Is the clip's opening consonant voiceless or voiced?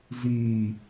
voiced